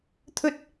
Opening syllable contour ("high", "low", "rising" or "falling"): high